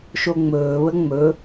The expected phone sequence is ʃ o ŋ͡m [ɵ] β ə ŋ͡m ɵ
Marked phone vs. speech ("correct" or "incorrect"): incorrect